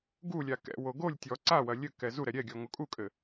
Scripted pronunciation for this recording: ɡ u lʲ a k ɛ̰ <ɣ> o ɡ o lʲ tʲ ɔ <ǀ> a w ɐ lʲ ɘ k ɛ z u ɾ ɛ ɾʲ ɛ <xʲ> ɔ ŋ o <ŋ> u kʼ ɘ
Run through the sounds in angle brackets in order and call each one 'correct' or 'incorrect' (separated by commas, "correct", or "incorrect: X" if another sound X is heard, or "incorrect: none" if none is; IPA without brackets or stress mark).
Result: incorrect: w, correct, incorrect: ɡʲ, incorrect: kʼ